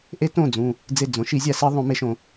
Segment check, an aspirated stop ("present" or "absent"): absent